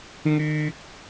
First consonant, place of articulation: velar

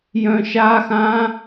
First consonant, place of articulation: palatal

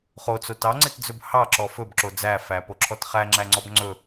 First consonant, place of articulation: uvular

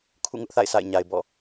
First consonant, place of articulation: velar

